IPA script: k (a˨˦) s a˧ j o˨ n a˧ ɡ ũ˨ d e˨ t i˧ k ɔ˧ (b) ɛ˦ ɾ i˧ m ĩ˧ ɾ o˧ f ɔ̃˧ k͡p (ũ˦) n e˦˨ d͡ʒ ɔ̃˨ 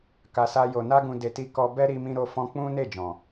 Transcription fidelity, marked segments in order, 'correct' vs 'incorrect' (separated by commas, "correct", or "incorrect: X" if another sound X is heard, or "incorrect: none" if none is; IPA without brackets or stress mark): incorrect: a˨, correct, correct